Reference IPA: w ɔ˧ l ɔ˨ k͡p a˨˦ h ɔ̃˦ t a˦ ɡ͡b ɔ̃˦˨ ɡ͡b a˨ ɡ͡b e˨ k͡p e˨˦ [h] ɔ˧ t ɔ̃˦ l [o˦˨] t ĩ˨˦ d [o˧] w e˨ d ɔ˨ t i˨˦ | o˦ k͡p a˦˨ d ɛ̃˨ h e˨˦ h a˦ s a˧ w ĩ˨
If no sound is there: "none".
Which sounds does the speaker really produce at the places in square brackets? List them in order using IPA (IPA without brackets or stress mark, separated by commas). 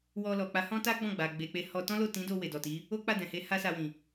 h, o˦˨, o˧